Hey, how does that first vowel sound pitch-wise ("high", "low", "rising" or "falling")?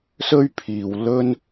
high